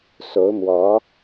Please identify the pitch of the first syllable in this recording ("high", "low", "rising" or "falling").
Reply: rising